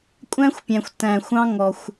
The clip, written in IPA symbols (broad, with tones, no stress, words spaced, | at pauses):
kʷʼæ̃˦xʷpʲæ̃˨xʷ tæ̃˨xʷɑ̃˦ ŋɔ˨xʷ